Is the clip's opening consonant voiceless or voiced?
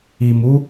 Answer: voiced